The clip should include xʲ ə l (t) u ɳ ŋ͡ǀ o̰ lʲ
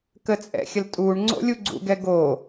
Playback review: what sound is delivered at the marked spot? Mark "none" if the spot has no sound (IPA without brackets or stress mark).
tʼ